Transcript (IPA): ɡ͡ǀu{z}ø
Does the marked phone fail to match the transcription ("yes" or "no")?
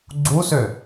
yes